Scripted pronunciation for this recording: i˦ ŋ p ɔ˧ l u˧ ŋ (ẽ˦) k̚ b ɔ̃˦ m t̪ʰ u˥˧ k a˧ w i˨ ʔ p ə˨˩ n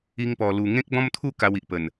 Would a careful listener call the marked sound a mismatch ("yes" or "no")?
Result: no